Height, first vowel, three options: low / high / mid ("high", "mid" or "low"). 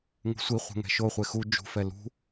high